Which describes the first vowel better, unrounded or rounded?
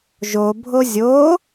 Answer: rounded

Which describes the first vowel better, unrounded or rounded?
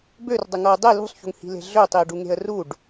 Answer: rounded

